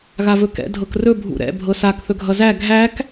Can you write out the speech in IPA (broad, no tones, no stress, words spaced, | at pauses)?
ɣavɵkɛ̰ dʱɤkrɵ bʱṵɾɛ̰ bʱɤsak θɵɡʱʌzæ ɡʱæk